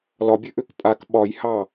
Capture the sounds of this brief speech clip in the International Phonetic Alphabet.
l ɒ bʲ ø ʔ ø k pʼ a k ɓ ɒ j h ɑ

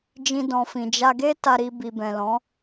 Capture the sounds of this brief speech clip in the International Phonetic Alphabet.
d͡ʒ ĩ˧ d ɔ̃˨ f ĩ˨ d͡ʒ a˧ ɡ e˦ t a˧ ɾ i˧ b i˨ b ɛ̃˨ l ɔ̃˨˦

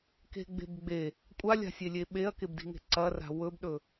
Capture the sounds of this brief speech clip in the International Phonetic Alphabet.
k e̤ ɡ͡b e̤ b ɡ͡b e | kʷʼ a lʲ a̤ sʲ e lʲ e ɓ e ɐ̯ k e b d i̤ ŋ e̤ ǀ ɐ r a̤ w ɵ b ɗ ɵ

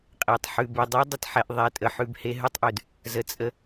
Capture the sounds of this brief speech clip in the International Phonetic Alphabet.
qʼ e˨ tˤ ħ ʉ˨ b ʉ˨ dˤ ɛ˦ dˤ ə˨ t ħ ɛ˨ ʔ ðˤ ɛ˨ tʼ ə˨ ħ ʉ˨ b h e˦ ɦ ʉ˦ tˤ ʔ ʉ˨ d | z ə˨ t͡sʼ ə˦

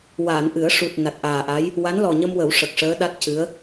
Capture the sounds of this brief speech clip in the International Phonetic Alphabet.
w aː˨˩˨ n ʔ ɨ˨˩˦ ə̯ ʂ u˨˩ t̚ n a˨˩ t̚ ʔ aː˨˩ ʔ a˧˥ j | w a˧˥ n l ɔ˨˩ ɲ ə˧ m w ə˨˩˦ w ʂ ə˨˩ k̚ ʂ əː˧˥ ɗ a˦˥ t̚ c ɨ˧˥ ə̯

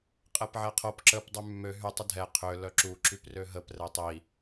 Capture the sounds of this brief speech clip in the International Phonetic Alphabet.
qʼ ɛ p ʕ ɛ qʰ o p ǁ ə p dˤ y mː ø ɦ y tˤ ə dʱ ɛ qʰ ø l œ ǁ u ǁ y p r ø ɦ ə p r ɛ tˤ i

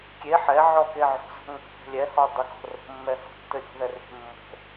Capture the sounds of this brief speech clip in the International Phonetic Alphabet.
kʲ e ħ ɛ ʕ ɔ k e ʕ o̤ z ɔ̤ ŋ o̤ θ ɛ̤ lʲ ɛ h ɔ dˤ ə k ɔ̤ r o̤ mː ɛ h ɔ̤ tː ɘ ɾʲ ɔ̤ ð ɛ r e̤ mː o̤

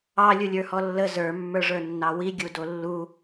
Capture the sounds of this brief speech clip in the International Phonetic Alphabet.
ɑ lʲ u lʲ ə˞ h ɔ lː ə z ə˞ mː ə˞ ʐ ə˞ nː ɑ w i ɡʲ u d o lː u

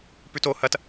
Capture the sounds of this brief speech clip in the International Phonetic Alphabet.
p ʉ t o h ɐ t

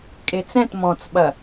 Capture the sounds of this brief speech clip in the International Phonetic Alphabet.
kʼ e t͡s ɛ̃ t m ɔ̃ t͡s ɓ ɐ

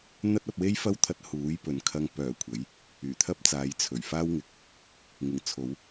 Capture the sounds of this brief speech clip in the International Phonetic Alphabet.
n̪ ɐ˥ t̚ ɐ˧ p̚ w e˥ j f ɐ˥ w t̪ʰ ɐ˧ t̚ h uː˨˥ j p ɵ˨ n kʰ ɐ˧ ŋ p œː˨˩ kʷʰ ɐ˨˥ j | yː˨˩ t̪ʰ ɐ˥ p̚ t͡s aː˨˧ j t͡sʰ ɵ˨˩ ɥ f aː˥ w ŋ ɪ˨ k̚ | ŋ ɪ˨˩ ŋ t͡sʰ o˨˧ w

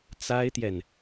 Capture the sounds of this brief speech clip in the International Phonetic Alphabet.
t͡s a˥ ɪ̯ t̪ j ɛ˨ n

